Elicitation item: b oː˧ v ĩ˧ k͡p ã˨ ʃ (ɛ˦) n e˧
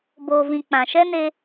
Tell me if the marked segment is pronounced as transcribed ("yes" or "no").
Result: yes